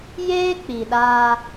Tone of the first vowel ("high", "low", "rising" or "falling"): high